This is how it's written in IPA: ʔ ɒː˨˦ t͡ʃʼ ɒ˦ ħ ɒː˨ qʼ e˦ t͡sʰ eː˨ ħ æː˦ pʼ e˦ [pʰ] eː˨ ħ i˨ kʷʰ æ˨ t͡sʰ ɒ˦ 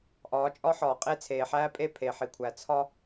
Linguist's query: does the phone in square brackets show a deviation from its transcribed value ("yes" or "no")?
no